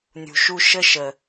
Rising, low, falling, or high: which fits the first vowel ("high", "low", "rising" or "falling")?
low